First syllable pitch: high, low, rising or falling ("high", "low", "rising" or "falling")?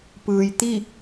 low